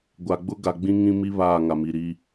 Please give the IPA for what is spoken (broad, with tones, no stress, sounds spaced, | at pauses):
ɡʷ a˨ ɡ͡b ʊ˦ ɡ a˨ ɡ͡b ĩ˦ ŋ ĩ˦ m i˦ β aː˦˨ ŋ a˨ m i˨ ɾ i˦